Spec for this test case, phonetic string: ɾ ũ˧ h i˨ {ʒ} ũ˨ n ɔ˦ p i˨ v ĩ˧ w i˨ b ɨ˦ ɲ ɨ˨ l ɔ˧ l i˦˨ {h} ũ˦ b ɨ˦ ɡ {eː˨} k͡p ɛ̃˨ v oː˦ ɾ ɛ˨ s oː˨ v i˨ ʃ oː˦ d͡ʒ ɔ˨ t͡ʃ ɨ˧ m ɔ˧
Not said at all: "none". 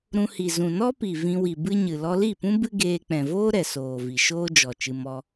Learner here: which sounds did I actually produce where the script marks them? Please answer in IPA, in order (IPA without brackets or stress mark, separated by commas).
z, p, eː˧